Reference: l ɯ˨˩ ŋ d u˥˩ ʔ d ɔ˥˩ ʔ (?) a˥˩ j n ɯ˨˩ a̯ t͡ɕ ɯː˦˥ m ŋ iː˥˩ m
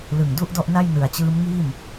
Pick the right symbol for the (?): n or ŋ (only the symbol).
n